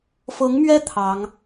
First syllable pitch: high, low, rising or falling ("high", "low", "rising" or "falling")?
rising